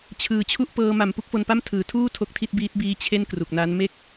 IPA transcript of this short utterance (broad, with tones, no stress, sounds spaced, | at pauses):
t͡ɕʰ ɯː˨˩ t͡ɕʰ u˥˩ ʔ p ɤː˧ m a˨˩ m p u˥˩ k̚ f o˧ n p a˥˩ m tʰ ɯː˩˦ tʰ uː˥˩ tʰ o˦˥ k̚ tʰ i˥˩ t̚ b iː˦˥ t̚ b iː˦˥ t͡ɕʰ e˥˩ n k r u˨˩ k̚ n a˦˥ n m e˥˩ k̚